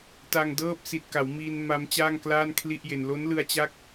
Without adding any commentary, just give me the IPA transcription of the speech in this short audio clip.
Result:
t a˧ ŋ d ɤː˥˩ p̚ s i˨˩ t̚ k a˩˦ w m iː˧ n m a˦˥ m t͡ɕ aː˥˩ ŋ k l aː˥˩ n kʰ l i˥˩ ʔ j e˧ n l o˦˥ n l ɯ˧ a̯ t͡ɕ a˦˥ k̚

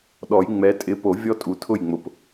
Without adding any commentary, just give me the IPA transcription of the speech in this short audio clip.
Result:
ɗ ɔ˨˩˦ j ŋ͡m ɛ˨˦ tʼ ɪ˨˦ p o˨˩˦ vʲ ɔ˦ tʼ u˨ tʰ ʊ˥˩ j ŋ͡m ʊ˨ p

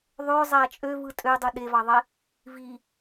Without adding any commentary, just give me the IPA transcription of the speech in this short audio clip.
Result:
ðˤ ø zˤ æ t͡ʃʼ ø v ɯ tʼ ø dˤ u ɗ e v ɑ ðˤ e | v i

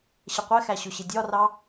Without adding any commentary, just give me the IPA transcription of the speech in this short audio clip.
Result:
ɕ ə qʷ ɛ x æ ɕ ʊ ɕ ɪ dʲ ɒ r ɑ

